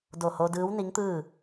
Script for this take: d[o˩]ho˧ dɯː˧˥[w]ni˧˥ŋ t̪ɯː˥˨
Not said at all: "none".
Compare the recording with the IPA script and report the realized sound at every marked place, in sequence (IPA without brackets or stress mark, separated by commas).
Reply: o˧˩, w